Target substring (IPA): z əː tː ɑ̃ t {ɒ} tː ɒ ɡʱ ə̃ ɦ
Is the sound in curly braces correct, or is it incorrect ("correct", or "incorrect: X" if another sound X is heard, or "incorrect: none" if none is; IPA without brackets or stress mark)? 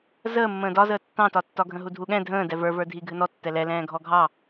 correct